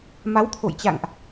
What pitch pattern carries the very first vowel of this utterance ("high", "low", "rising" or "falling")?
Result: rising